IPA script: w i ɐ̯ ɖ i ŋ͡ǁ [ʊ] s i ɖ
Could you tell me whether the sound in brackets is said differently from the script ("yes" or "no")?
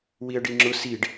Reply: no